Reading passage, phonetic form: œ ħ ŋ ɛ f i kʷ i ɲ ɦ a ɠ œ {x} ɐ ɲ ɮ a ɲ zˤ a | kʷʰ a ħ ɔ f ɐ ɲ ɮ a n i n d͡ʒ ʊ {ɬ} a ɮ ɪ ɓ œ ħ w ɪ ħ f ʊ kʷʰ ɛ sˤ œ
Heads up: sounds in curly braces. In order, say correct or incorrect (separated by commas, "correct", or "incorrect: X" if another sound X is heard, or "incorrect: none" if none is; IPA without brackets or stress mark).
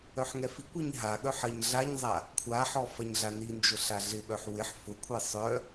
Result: incorrect: ħ, correct